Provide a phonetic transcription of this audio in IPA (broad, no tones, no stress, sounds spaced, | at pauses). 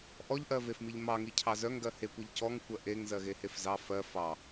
ʔ ɔ ʎ ʔ ɜ v e f m i ʎ m ɑ ŋ i cʰ ɑ z œ ŋ ɡ ɜ h e kʷ i ʎ c ɔ ŋ kʷ ɜ ʔ e ŋ z ɜ ɣ e h e f z ɑ f ɜ f ɑ